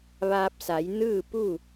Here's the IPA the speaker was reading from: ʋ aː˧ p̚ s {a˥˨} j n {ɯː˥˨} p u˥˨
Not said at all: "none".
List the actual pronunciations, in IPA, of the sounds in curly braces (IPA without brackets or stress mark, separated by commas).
a˩˧, ɯː˥˨